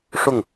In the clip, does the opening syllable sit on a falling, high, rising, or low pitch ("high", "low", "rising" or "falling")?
falling